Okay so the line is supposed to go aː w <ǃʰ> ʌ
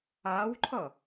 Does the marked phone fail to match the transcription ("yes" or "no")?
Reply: no